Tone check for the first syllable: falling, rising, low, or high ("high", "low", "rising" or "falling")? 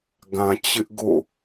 low